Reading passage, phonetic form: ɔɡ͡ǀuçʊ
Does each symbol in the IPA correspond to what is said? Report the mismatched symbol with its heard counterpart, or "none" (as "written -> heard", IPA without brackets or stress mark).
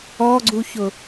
none